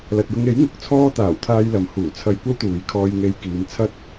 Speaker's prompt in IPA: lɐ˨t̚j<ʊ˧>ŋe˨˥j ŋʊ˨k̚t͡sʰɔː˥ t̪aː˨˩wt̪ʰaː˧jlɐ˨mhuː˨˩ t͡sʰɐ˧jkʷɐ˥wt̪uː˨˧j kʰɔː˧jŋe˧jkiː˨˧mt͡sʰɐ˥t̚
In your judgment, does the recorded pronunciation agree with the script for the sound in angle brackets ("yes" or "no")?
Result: yes